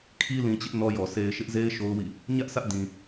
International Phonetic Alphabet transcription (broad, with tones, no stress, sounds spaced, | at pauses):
kʰ i˦ l ĩ˨ t͡ɕ ɪ˦ ʔ n ɔ˦ j ɔ˨ sʰ e˨ ɪ̯ ʃ ɪ˦ ʔ z e˦ ɪ̯ ʃ o˦ ʊ̯ w ḭ˦˨ | ɲ ä˦ ʔ s ä˦ ʔ d ĩ˨